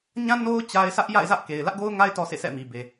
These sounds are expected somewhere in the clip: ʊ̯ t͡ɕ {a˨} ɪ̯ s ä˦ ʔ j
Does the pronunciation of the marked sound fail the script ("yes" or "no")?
yes